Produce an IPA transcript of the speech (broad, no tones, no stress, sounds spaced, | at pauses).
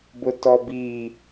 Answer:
b ʊ t ɔ b i